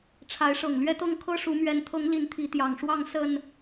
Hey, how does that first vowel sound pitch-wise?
rising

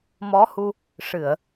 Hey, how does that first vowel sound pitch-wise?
rising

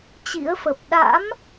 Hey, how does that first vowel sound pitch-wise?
rising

